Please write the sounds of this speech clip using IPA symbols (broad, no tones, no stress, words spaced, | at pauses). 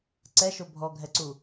ǀɛʃo bʱɔɡʱɛǀu